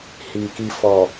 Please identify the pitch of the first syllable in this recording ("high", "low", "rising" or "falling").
low